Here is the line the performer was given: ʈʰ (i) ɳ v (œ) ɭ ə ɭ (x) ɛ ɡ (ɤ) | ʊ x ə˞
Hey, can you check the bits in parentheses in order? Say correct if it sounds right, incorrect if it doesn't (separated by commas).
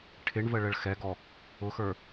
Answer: incorrect, incorrect, correct, incorrect